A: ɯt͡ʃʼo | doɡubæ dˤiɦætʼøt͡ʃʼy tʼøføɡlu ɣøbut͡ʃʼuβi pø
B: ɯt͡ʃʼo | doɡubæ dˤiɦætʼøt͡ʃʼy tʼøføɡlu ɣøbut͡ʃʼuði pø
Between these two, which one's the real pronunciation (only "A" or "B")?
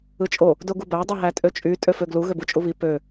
A